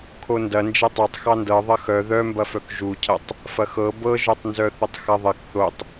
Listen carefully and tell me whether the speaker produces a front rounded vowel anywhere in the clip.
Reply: yes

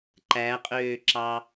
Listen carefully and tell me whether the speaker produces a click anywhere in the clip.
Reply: yes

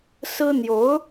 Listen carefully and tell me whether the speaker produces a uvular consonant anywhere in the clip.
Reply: no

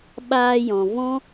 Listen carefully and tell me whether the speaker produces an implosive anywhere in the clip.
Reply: yes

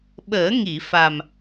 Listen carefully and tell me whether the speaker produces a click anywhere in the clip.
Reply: no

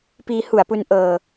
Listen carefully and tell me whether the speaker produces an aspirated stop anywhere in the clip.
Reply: no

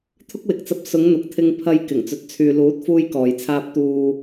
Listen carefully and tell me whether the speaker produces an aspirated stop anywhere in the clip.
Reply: yes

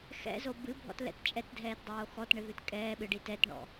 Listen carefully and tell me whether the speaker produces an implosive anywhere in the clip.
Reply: yes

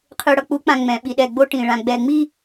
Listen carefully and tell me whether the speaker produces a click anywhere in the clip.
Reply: no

